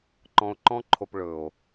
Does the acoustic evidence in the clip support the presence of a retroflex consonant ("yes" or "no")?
yes